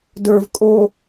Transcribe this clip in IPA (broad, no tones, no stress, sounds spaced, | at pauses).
d ə˞ v kʼ o